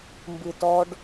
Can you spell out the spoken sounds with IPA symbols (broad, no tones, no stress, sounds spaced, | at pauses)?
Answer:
m b ɨ t ɔ ɖ